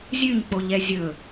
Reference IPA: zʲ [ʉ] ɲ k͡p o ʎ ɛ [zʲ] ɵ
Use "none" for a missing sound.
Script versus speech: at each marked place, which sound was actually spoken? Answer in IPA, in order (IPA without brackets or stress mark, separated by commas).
ʉ, zʲ